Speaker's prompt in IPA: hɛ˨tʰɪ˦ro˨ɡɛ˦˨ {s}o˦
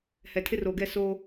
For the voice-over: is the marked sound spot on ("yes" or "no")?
yes